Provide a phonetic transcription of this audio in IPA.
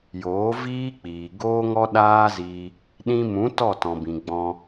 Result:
j oː˨˦ v iː˦ k͡p iː˨ ɡ oː˦ ŋ ɔ˦ ɗ aː˦ z iː˧ | ɗ ĩ˧ m ũ˨˦ t ɔ˦˨ t ɔ̃˨ b ĩ˨ ɡ͡b ɔ̃˧

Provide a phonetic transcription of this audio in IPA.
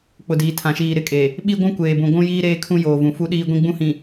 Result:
k͡p ʊ˨ d iː˨ tʰ ã˨ ʃ iː˨ ɾ ɪ˦˨ kʼ e˨ | ɓ i˦ ɡʷ ũ˦ kʷ eː˨ b ũ˨ ɡʷ ũ˦ j iː˦ ɾ eː˦ kʰ ũ˦ j oː˨ v ũ˨ f u˦ ɗ iː˦ ɡʷ ĩ˦ ɡ͡b ũ˦ h ĩ˨

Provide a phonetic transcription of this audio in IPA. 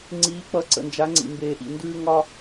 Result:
ŋ͡ǀ iː˩˧ k͡p ʌ˩˧ ǀ ə̰˩ n d͡ʒ a˩˧ ŋ͡ǀ ḭ˩ m b eː˩ ʔ ḭ˩ n d ʉː˧ ŋ ɒ˧

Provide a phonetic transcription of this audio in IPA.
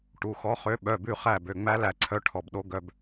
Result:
ʈ u˩˧˩ x ɔ˧˥ χ ø˧˥ ɓ œ˩˧˩ b ʉ˦˨ χ æ˦˨ b ø˩˧˩ ŋ͡m æ˥ l æ˦˨ ǀʰ œ˧˥ ʈʰ ɔ˩˧˩ b ɗ o˧˥ ɡ œ˩˧˩ b

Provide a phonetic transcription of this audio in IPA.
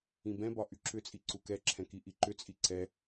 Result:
ĩ b ɛ̃ b ɒ ʔ y ǁ ʏ t͡sʼ i ǀ u k ɛ ǁʰ ɛ̃ k i ʔ i ǃ ʏ t͡sʼ i ǀ ɛ

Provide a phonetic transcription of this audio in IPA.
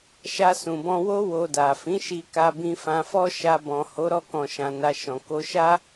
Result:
ʃ a˧ s ũ˨ b ɔ̃˧ w o˦ w o˧ d a˨ f ĩ˨˦ ʃ i˧ k a˧ b ĩ˧ f ã˧ f ɔ˦ ʃ a˧ b ɔ̃˨ h o˨˦ ɾ ɔ˧ k ɔ̃˨ ʃ ã˨ n a˧ ʃ ɔ̃˨ k o˧ ʃ a˦

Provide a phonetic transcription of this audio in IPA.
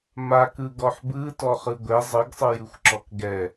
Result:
m a k ɯ ɡ ɔ ħ b ɯ t ɔ χ ɯ ɡʷ ɛ zˤ ɯ ɡ sˤ ɯ j ɯ xʷ ǁ ɔ k ɡ ɛ

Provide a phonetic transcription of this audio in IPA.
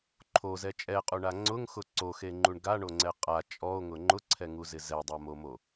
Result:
ǃʰ o z ɛ t͡ʃʼ ɛ qʼ u ɳ a ŋ͡ǀ ʊ ŋ x ʊ ǀ o x e ŋ͡ǃ u ɳ ɡ a ɳ o ŋ͡ǀ ɛ qʼ a t͡ʃʼ ɔ o̯ ŋ ʊ ŋ͡ǃ ʊ ǀʰ ɛ ŋ u z ɪ z ɛ dˤ a m o m o

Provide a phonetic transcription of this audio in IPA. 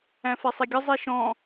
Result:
æ̃ f ɛ sˤ i ɡʲ ə zˤ i ʃ ɔ̃

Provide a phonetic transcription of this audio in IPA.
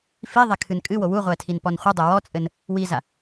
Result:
f i ðˤ ɛ kʰ ɨ n kʼ ɨ w o w u ʁʷ ɛ tʰ i n p ɔ n χʷ ɨ dˤ o w ɔ t͡sʼ ɘ n | w i z a

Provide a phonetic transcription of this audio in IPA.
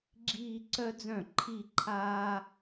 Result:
ɡ͡ǁ iː˥˧ ǀ œ˥ d͡z œ̃˥˩ ǃʰ i˥˧ ǃʰ aː˥

